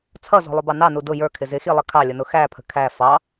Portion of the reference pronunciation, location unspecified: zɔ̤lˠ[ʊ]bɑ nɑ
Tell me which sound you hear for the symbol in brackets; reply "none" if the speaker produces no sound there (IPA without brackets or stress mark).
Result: ʊ